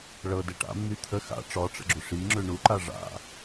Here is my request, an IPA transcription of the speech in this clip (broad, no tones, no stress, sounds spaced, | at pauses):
ɭ ɤ d ɛ ʈ a̰ mː y t̪ʰ ə x a̰ ʈ͡ʂ ɔ ʈ͡ʂ ə̰ ɡ͡ǁ ʏ ʂ i ŋ͡ǁ ʏ ɳ u ǃ a ʐ a̰